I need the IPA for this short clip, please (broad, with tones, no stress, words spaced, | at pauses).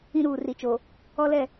ĩ˦ɾuː˨ ri˨t͡ʃo˨ | ɔ˦lɛ˦˨